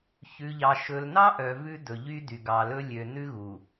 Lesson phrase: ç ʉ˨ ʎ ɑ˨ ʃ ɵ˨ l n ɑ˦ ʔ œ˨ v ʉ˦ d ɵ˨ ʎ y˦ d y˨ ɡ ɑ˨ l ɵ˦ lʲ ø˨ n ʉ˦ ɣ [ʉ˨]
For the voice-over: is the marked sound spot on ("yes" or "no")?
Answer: no